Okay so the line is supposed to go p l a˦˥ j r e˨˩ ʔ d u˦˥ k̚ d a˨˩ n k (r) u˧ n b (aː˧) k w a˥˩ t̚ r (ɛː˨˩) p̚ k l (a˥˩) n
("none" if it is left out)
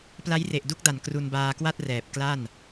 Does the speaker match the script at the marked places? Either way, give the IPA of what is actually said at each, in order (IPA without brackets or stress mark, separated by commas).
r, aː˧, ɛː˨˩, a˥˩